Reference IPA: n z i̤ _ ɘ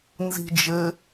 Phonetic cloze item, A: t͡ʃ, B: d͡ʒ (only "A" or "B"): B